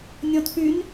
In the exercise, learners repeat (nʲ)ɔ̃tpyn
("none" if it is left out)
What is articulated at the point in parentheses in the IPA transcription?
nʲ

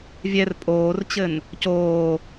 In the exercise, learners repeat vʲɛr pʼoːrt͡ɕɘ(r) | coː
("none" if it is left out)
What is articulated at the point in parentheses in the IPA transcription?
n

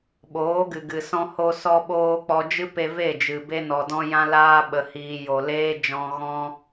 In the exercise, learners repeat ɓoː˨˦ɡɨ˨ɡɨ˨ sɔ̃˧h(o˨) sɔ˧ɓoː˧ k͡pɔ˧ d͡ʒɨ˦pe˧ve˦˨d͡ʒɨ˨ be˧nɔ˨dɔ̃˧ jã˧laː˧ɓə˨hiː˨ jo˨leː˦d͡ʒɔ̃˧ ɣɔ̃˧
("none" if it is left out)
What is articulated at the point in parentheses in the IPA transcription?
o˧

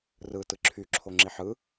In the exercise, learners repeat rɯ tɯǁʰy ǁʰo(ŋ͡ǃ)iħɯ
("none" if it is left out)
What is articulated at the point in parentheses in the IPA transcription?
ŋ͡ǁ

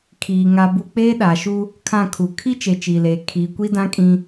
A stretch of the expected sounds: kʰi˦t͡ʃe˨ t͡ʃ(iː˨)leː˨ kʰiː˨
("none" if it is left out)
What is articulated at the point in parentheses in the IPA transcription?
iː˨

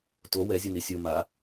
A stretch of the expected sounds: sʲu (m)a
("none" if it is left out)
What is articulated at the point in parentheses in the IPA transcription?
m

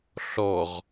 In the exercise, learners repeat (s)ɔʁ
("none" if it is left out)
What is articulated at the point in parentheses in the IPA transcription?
ɬ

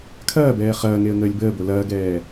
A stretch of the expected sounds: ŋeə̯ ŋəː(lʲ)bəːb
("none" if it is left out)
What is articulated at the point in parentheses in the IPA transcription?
lʲ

